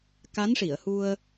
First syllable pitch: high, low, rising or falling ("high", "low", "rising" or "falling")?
rising